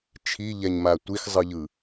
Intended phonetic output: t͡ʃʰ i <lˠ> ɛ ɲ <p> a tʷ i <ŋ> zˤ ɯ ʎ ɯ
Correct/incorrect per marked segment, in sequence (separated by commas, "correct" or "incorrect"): incorrect, incorrect, incorrect